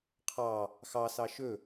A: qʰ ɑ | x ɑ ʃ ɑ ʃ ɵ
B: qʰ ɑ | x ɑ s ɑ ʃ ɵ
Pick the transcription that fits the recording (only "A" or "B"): B